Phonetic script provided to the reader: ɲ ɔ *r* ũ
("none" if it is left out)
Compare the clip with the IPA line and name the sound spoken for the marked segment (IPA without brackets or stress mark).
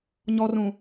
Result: r